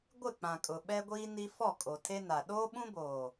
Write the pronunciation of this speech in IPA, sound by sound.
ɡʷɪ˦˨k͡pã˨kʼʊ˨ ɓɛ˦ɡʷiː˦ ni˦ fɔ˦˨kʼo˨ tʰe˦na˨ ɗoː˦ɓũ˦boː˨

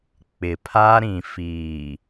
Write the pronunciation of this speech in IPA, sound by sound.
k͡pɪ˨pʰa˦ɾĩ˨ fiː˨

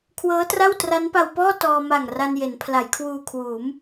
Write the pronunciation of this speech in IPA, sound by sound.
kʰwɤː˦˥tra˥˩w tra˦˥npa˧wpɔː˥˩ tɔː˧ ma˨˩ŋra˧n je˩˦npʰla˩˦jkʰwuː˧ kʰwuː˩˦m

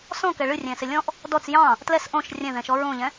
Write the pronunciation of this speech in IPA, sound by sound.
sɔ̃kɛ ɭɨrʲɛ̃sɪ lʲɔ̃ʔ | dɔt͡s jɑ̃ | tlɛs ʔõʃ rʲɛ̃ðɛ̃ʃɔ ɹõʎɛ̃

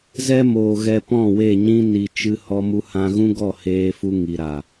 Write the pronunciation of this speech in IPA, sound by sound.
zɛ˦moː˨ɣɛ˧ pɔ̃˦˨we˦˨ ɲĩ˦ ni˨t͡ʃɨ˧ hɔ˧mu˧hã˧ɣũ˦ ɡɔ˦˨heː˧fu˧ ŋi˨ɾa˨

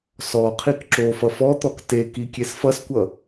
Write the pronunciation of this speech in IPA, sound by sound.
sɔqʰik ǁofʌ fɔt̪ɔk tekikʲes fʌskʷʌ

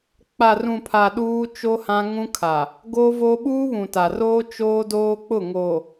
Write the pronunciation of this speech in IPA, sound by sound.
k͡pa˨rũ˨pʰa˨ ɗuː˦ t͡ʃo˦hã˦ ŋũ˦kʰa˨ | ɡoː˦voː˦ ɓuː˦βũ˨ta˨roː˦ t͡ʃoː˦ doː˦k͡pʊ˦˨ŋo˨

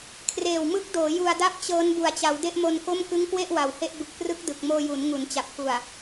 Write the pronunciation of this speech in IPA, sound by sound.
kʰreː˨˩wmɯ˦˥k̚doː˩˦ ju˧a̯da˥˩p̚t͡ɕɤː˦˥n bu˨˩a̯t͡ɕa˩˦w de˥˩ʔmo˧nko˥˩m kɯ˦˥ŋkwe˥˩ʔ wa˨˩whe˥˩ʔ bɯ˨˩k̚prɯ˦˥k̚ dɯ˨˩k̚moː˧ju˩˦n ŋu˩˦nt͡ɕa˨˩p̚ku˨˩a̯

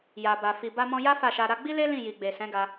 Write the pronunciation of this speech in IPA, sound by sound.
ja˨ba˨ fi˨ba˧mɔ̃˧ja˦ fa˦˨ʃa˧ ɾa˧ɡ͡bi˦le˦ lĩ˦˨ji˨ɡ͡be˨ sɛ̃˨˦ɡa˧

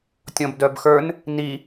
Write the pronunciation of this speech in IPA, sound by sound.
tʲɔ̃bdœbxə˞n | ni

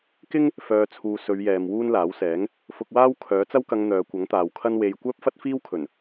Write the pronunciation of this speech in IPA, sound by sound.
kɪ˥ŋ | fœː˨t͡sʰuː˨ sɵ˨˧ɥjɛː˨m wuː˥nlaː˨˥wsɛː˨˥ŋ | fʊ˧k̚waː˥w kʰœː˨˥t͡sɐ˥wkɐ˧ŋ n̪œː˨˧kʷɐ˨˥ŋt̪aː˨wkʰɐ˥n we˧j kʷœː˥p̚fɐ˥t̚fiː˥w kʰɵ˨˩n

